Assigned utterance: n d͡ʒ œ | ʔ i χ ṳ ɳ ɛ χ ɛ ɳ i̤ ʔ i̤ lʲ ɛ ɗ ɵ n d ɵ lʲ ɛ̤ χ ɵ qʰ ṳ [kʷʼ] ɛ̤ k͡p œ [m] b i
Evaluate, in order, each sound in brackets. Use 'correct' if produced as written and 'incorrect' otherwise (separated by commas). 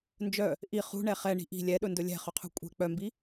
correct, correct